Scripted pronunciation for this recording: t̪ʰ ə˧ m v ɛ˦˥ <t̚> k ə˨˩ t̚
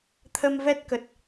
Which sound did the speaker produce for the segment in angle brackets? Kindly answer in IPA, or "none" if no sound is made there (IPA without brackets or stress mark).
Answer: t̚